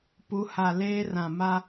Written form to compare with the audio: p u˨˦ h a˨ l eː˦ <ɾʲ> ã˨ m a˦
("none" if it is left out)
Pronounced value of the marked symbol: r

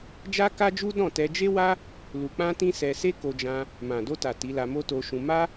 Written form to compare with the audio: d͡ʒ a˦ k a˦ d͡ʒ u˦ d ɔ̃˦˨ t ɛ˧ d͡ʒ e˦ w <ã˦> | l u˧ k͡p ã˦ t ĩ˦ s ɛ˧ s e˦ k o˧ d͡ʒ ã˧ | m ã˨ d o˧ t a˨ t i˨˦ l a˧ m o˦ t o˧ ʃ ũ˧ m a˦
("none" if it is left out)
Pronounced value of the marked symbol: a˦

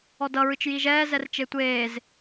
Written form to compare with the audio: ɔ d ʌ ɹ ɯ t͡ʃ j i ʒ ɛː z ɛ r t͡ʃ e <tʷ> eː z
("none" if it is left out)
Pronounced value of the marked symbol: tʷ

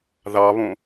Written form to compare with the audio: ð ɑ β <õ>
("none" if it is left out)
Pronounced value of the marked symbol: õ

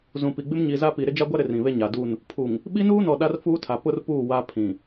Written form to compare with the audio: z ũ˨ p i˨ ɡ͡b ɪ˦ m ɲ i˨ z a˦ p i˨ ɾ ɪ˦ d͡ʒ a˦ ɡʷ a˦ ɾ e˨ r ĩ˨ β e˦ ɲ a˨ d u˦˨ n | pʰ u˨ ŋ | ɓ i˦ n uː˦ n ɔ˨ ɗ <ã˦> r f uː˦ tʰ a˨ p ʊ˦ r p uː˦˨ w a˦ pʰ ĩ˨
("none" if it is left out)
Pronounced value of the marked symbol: a˦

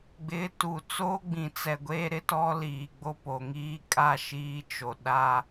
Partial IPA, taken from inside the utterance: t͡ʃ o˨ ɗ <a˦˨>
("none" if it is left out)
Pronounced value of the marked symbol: a˦˨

